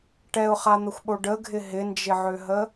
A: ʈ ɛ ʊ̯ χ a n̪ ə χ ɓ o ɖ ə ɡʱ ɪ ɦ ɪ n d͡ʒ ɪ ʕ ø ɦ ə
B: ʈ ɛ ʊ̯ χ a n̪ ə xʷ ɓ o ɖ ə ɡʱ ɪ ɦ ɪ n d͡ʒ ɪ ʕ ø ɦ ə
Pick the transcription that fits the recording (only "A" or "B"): B